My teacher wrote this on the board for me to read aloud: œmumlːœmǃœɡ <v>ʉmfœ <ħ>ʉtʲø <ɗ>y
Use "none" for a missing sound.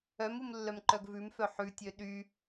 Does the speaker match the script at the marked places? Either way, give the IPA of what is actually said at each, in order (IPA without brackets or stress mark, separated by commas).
v, ħ, ɗ